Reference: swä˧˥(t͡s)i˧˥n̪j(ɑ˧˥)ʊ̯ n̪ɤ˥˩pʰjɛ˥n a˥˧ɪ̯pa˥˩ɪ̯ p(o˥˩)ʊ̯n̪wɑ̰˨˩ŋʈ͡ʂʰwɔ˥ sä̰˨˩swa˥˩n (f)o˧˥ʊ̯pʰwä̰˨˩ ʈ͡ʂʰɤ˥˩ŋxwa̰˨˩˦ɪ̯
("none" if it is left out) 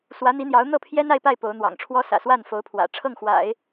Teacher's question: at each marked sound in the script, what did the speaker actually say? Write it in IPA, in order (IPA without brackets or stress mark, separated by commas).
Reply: n̪, ɑ˧˥, o˧˥, f